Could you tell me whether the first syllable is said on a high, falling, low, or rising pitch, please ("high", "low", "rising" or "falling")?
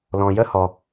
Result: low